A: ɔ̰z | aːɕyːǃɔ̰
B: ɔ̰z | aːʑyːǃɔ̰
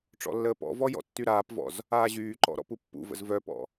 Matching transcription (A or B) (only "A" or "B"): B